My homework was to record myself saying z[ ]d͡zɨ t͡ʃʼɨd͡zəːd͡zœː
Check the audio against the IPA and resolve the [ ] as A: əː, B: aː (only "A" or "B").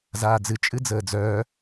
B